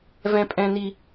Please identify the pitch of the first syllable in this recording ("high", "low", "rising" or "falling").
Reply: high